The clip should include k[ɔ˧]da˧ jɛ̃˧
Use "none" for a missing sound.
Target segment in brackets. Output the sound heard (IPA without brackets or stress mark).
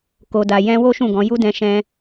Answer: o˧